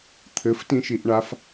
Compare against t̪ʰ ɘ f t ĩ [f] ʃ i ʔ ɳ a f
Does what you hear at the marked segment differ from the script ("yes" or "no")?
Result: yes